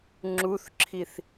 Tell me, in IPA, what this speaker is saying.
ŋ͡ǁuθǁʰiθ

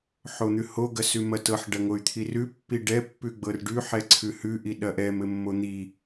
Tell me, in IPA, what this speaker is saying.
ħon̪ʉho ɡɐsʉmɐtɤħ ɖɐŋoy̯t̪ʰirʉ pːiɖɛ pːʉɡ͡bɤrɖʉ ħɛǀʰʉhʉ ʔiɗɐʔɛm ɘmːon̪i

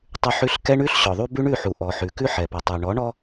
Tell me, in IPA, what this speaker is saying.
tˤʉ˨ħʉ˨˦ɬ kɛ˦ɳʉ˦ɬɕɔ˨ðˤu˦ bʉ˦ɳʉ˦˨ħu˨ ʔɔ˨ħʉ˨ kʉ˦ħɛ˨pɛ˨tˤʉ˨ ɳɔ˨˦ɳɔ˦

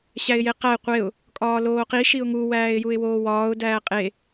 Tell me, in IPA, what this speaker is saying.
ɕæɪ̯jeqæɪ̯ qʷeʊ̯ | kʼɒːloːqi ʃiʊ̯ŋu wæːɪ̯juɪ̯woːwɒːʊ̯ dæːqʼe

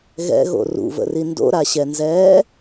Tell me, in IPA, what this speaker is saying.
ɣɛ̰ɣo̰ rṵvə̰ri ndo̰ɾaɕɛnzɛː

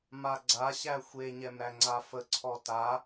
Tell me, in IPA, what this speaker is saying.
maɡ͡ǀaɕæ xʷeɲɛm ɾæŋ͡ǀafəǀʰɔ ta

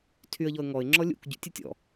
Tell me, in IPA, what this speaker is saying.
tʰyə̯ʎɔə̯ ŋɔɪ̯ ŋ͡ǁɔlʲṵk ɟṵtʲɘtʲɔ̰

